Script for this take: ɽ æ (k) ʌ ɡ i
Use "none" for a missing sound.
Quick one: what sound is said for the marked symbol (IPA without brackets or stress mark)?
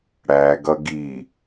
ɡ